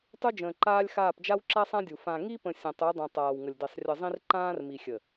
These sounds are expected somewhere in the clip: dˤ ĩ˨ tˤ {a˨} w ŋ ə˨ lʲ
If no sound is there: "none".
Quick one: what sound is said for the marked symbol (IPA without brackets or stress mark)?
aː˨